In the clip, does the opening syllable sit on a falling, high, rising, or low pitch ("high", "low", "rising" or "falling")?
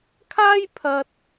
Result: high